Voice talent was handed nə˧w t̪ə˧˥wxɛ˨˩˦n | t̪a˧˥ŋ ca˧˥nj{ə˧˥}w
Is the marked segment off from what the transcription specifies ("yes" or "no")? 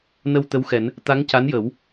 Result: yes